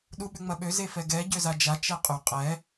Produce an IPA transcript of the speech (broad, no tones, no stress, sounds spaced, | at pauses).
ɗ u ɓ ʏ ŋ͡m ɐ ɓ ø z e f ɛ ɡ ɛ ɟ ø z a d͡ʒ a t͡ʃ ɛ qʼ y qʼ ɛ